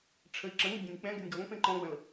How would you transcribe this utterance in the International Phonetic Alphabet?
ʈ͡ʂʰ ə i̯ ǁ ə̃ ŋ ɪ bʲ ɛ̃ nʲ k͡p ɛ̃ ɡ ɛ̤ nʲ ɡ ɔ ŋ p ẽ ǃ ɔ̃ ɡ͡b ɐ̃ l

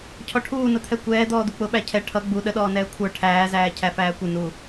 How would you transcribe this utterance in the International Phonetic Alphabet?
cʰ ɔ ʈʰ uː n ʊ t̪ʰ ɛ kʷ ɛː d̪ ɔː d̪ u k͡p ʊ ɓ æ cʰ ɛ ʈʰ ʌ ɡ͡b u ɗ ə ɗ ɔː n ɛː kʷʰ ə˞ ʈʰ æː z æː cʰ æ f æː kʷ ɪ n u

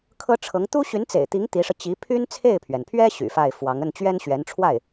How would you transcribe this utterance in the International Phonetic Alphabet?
kʰ ɤ˥ ʈ͡ʂʰ ɤ˧˥ ŋ t̪ u˥ ɕ y˧˥ n t͡s ḛ˨˩ ɪ̯ t̪ i˧˥ ŋ t̪ i˧˥ ʂ ɤ˧ t͡ɕ i˧˥ pʰ y˥ n t͡sʰ e˥˩ ɪ̯ pʰ ɥ ɛ˩ n pʰ ɥ ɛ˥ ɕ y̰˨˩ f a˥˩ ɪ̯ f w ɑ˧˥ ŋ ə˥˩ n t͡ɕ ɥ ɛ˥ n ɕ ɥ ɛ˧˥ n ʈ͡ʂʰ w a˥˩ ɪ̯

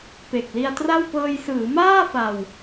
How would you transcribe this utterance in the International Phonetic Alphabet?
p e˨˩ k̚ l i˧ a̯ t r a˥˩ w p ɤː˧ j s ɯː˩˦ m aː˥˩ f a˧ w

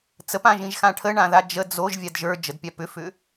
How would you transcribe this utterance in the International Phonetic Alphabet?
t͡s ə p ã ʒ ĩ ʒ x ã ʈʰ ə ɳ ã ð a d͡ʒ ə d͡z o ʒ vʲ a d ʒ ə˞ d͡ʒ ə d pʲ a p ʏ f ʏ

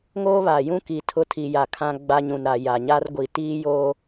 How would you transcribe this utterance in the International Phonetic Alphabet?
ŋ oː˦ β a˨ j ũ˦ k i˨ tʰ ʊ˦ tʰ i˨ j a˨ kʰ ã˦ ɡ͡b a˦ ɲ ũ˨ n ɾ a˨ j a˨ ɲ a˦ r ɡʷ i˨ t iː˦ j oː˦

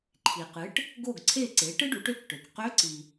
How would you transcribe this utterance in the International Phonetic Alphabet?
ǃʰ i˩ q ɨ˩˥ ʈ | ɡ o˥˩ ɡ ǀʰ e˥˩ ǀ e˩˥ ʈ ɨ˥ ɖ u˩˥ ʈ ø˥ k ʈ ø˩ k q ø˧˥ ǀ i˩

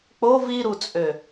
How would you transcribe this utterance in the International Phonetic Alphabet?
k͡p o v i ɾ u t͡sʼ ø

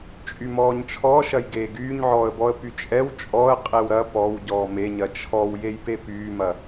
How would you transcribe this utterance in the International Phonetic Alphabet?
t͡ʃʼ y m ɔː ɲ t͡ʃʰ ɔː ʃ ɐ j ɡ eː ɡ yː ɲ ʕ ɔː ə̯ b ɔ ə̯ p y t͡ʃʼ ɛ w t͡ʃʼ ɔ ə̯ qʼ e w ɾ ɐ p ɔ w ɟ ɔː m e ɲ ɐ t͡ʃʰ ɔ w j e j p e p yː m ɐ

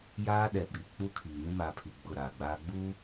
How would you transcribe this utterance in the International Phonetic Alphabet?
j aː˦ ɗ ɛ˨ ɓ i˨ k͡p u˦ kʰ iː˨ ŋ ĩ˦ m aː˨ pʰ i˨ ɡ͡b ʊ˦˨ ɾ aː˨ ɡ͡b aː˦ ɡ͡b u˦

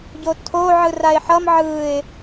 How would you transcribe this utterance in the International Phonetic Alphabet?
ɟ o tʰ o ʕ ɯ r a ɪ̯ ħ ʌ m ʕ ɯ ɪ̯

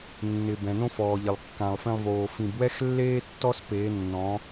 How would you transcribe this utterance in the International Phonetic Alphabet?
nː ɪ˨ b ɛ̃˨ n õ˦ f ɔː˨ ʎ ɪ˨ lˠ kː ã˨ lˠ f ẽ˧ lˠ v oː˨ f ĩ˨ b w ɛ˦ x lː eː˦ tː ɔ˦ s p eː˨˦ nː ɔ̃˨˦

